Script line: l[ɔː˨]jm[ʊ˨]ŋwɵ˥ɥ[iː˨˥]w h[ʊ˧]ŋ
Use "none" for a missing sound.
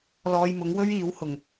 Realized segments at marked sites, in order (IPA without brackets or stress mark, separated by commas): ɔː˧, ʊ˨˥, iː˨˥, ʊ˨˩